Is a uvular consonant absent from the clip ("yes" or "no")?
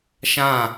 yes